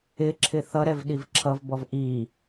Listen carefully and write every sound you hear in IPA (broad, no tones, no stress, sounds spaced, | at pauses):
ɪ ǁʰ ɪ θ ʌ ɾ ɛ v ɗ i v ǁʰ ʌ v b ɔ v ʔ i